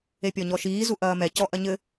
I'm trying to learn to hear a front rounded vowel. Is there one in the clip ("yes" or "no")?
no